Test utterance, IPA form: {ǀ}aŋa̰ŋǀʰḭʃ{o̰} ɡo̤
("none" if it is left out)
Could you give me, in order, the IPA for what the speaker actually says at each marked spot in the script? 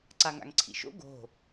ǀ, o̰

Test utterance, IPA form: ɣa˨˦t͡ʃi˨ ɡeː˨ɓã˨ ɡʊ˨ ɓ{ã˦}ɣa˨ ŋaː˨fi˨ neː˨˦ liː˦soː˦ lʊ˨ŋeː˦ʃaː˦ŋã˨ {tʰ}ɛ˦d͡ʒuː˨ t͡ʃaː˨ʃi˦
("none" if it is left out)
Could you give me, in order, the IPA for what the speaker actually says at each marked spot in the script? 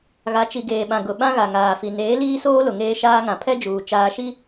ã˦, pʰ

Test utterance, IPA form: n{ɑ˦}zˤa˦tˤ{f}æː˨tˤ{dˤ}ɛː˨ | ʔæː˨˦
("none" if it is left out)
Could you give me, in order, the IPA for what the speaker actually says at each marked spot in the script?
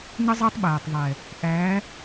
ə˦, ɓ, ðˤ

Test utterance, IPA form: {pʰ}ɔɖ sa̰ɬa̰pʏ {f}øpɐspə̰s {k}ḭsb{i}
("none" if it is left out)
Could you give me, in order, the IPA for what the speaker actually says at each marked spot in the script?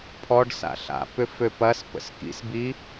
pʰ, f, k, i

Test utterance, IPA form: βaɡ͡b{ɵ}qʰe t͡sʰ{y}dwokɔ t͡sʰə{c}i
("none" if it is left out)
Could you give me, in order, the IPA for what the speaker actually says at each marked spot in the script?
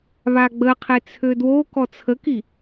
ə, ø, k

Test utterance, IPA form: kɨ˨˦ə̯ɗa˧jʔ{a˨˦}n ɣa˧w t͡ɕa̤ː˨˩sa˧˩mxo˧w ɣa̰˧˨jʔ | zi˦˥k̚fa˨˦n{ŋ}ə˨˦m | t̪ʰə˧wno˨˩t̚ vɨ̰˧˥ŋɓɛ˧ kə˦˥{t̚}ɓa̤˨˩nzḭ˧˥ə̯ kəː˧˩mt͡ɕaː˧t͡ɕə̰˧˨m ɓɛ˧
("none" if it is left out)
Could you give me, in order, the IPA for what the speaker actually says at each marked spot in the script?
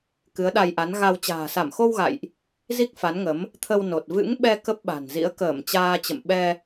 a˨˦, ŋ, p̚

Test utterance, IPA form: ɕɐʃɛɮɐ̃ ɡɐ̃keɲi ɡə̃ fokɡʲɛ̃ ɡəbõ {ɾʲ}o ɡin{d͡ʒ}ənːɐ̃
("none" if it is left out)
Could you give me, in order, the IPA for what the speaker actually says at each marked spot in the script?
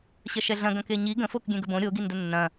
ɾʲ, d

